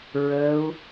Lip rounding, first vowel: unrounded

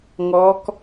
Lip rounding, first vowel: rounded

